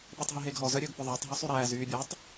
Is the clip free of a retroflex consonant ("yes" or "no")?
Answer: yes